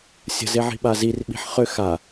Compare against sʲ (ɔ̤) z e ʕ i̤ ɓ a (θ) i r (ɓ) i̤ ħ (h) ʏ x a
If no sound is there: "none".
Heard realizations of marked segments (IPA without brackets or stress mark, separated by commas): ə̤, z, ɓ, χ